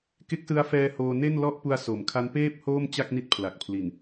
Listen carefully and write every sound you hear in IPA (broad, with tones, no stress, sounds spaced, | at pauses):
k e˦˥ k̚ s ɯ˦˥ a̯ f ɛː˧ h oː˧ n e˥˩ n l ɔ˥˩ ʔ p u˧ a̯ s o˩˦ m kʰ a˦˥ n p eː˥˩ p̚ h oː˥˩ m t͡ɕ a˥˩ k̚ n i˦˥ t̚ pʰ l a˨˩ k̚ pʰ l i˨˩ n